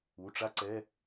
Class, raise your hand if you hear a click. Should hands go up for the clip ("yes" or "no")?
yes